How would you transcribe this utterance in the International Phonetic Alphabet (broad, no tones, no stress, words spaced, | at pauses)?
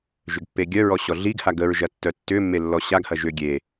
ʒʏɡpːeɡʲœɹɔ ɕɔɮiɡha ɡəɹʒɐ tːœtːʏmːe lːɔɕaɡhɐ ʒʏ ɡʲe